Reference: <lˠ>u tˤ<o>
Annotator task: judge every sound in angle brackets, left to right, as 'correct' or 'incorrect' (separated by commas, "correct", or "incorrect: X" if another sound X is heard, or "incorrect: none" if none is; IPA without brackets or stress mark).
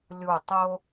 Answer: incorrect: lʲ, correct